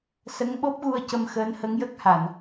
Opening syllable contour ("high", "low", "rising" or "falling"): rising